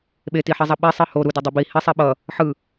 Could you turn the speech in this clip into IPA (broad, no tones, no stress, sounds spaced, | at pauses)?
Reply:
ɓ e t i ħ i zˤ ʌ ɓ e sˤ ɯ h o ɾ u d i dˤ i b i h i sˤ i ɓ ʌ | ħ ɯ